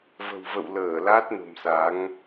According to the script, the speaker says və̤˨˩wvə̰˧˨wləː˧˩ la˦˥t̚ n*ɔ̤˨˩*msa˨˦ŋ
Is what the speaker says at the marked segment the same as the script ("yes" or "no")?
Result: no